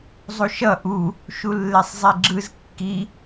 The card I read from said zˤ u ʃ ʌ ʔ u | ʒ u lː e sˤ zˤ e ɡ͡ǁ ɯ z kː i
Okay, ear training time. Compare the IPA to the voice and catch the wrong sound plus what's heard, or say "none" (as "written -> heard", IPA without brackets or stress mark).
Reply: ʒ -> ʃ